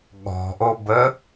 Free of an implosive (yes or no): no